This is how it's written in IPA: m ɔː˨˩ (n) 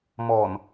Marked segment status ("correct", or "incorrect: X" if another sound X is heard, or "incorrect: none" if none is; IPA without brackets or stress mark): correct